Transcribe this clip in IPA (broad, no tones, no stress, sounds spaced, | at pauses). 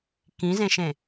k ĩ z ẽ ʃ ẽ